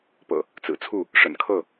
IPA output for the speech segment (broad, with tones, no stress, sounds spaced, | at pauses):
p ɤ̰˨˩ | t͡s ɹ̩˨˩ t͡sʰ u˥˨ | ʂ ə̰˨˩ n kʰ ɤ˥˨